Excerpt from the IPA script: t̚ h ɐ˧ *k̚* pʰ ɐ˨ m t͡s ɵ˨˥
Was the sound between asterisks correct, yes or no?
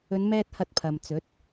no